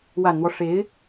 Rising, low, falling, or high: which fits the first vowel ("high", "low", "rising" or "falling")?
low